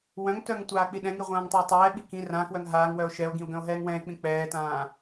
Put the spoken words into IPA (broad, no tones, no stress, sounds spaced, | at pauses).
w œ̃ ŋ t œ ŋ tʷ aː k͡p i ɗ ɛ̃ ŋ i ʁʷ ãː ŋ tˤ œ o̯ tˤ ɛː ɓ i k ĩ r ã k w œ ŋ ɦ aː ŋ w œ o̯ ʃ ɛ o̯ ɡ ĩ o̯ ɡ œ̃ o̯ ɦ ɛː ŋ w ɛ̃ e̯ k͡p ĩ k͡p ɛː t ãː